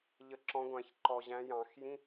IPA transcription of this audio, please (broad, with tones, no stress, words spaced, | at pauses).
ʎə˨˩˦ǁɔ̃˨˦ɡʷæ̃˨˩˦ç ǃɔ˨ʑæ̃˨˦ jɑ̃˨˩˦x jĩ˧˥˧